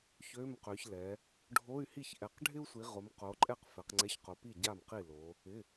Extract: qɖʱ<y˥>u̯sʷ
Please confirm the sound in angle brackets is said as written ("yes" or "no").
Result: no